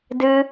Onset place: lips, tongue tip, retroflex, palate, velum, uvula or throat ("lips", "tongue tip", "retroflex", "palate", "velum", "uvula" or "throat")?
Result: tongue tip